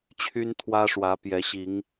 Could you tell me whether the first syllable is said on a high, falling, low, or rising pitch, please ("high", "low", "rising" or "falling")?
high